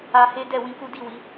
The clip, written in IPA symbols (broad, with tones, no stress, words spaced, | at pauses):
a˧he˦ dɛ˦˨wĩ˧ku˦ di˦˨wi˨˦